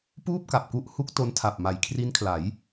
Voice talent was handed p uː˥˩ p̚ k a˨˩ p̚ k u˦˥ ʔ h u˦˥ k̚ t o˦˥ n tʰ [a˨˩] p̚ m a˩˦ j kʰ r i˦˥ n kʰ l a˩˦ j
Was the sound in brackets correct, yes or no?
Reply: yes